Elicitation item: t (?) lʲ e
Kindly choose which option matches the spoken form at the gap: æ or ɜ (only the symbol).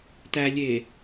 æ